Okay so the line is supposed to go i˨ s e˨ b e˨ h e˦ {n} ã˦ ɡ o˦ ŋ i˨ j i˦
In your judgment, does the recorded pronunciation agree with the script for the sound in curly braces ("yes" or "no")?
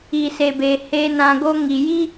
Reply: yes